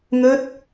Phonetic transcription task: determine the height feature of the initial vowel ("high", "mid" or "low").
mid